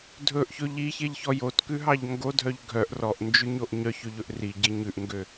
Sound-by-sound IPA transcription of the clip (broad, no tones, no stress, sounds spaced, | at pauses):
dʱ ɵ ʔ ç ɵ ʎ i ç e ʎ ç ɔ j o t k ʉ ɦ ɑ ʎ ŋ ɡ o dʱ œ ʎ ɡʱ œ ʔ r ɔ ʔ n d͡ʒ ʉ ɲ o ʔ ɲ œ ç ø ʎ ɵ ʔ r i ɟ e ɲ ʉ ʔ ŋ ɡ ø